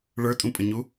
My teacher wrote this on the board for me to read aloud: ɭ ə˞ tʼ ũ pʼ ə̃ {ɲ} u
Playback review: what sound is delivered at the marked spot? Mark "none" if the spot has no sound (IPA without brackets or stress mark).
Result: ɲ